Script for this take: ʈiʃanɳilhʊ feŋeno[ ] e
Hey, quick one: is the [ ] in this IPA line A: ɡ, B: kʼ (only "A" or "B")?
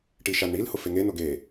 A